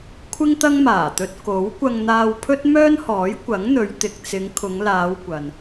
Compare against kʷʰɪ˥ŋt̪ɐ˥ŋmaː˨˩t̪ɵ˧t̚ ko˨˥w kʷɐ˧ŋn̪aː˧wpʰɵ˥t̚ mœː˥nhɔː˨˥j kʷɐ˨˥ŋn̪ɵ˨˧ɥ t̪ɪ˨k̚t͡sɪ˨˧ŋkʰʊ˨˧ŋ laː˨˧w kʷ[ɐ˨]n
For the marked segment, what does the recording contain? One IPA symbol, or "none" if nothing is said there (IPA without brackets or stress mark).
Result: ɐ˨